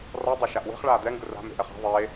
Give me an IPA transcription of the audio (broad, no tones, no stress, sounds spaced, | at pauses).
r ɔ dˤ ɛ ʃ a ʔ w e̤ χ ɭ aː d̪ ɛ ŋ ɡ ɯ r a̤ m e̤ ʔ ɛ χ a̤ ðˤ e